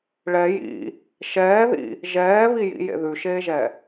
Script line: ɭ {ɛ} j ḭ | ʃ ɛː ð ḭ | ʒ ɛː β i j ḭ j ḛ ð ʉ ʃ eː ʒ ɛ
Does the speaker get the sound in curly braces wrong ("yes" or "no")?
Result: no